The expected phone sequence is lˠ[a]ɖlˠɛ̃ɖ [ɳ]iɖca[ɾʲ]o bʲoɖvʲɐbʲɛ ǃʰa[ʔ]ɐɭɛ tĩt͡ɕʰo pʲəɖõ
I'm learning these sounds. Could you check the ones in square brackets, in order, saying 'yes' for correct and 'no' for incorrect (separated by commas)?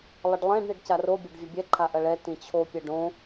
no, yes, no, yes